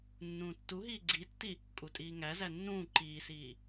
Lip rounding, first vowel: rounded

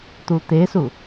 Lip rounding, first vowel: rounded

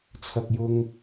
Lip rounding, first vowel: unrounded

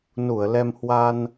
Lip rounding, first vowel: rounded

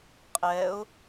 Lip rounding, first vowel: unrounded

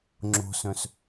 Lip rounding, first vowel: rounded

